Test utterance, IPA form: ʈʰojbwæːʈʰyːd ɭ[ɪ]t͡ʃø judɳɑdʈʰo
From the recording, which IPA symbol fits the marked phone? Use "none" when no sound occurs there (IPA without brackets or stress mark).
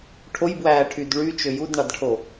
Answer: y